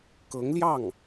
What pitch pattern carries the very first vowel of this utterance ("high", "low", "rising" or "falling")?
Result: rising